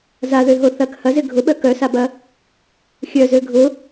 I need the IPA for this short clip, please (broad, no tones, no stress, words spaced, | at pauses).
zaðøɦo θɐk hɐzɪ ɡʱʊɓœ kœsabɐ | xʲœzø ɡʱʊ